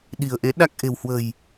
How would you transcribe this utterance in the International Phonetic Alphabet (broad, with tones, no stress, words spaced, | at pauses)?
ɗi̤˨˩ə̯ʔe˨˦ ɗa˦˥k̚ ʔe̤˨˩whwə̤˨˩j